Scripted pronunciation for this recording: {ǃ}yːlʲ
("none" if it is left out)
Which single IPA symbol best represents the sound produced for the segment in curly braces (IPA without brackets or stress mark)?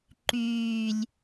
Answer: ǃ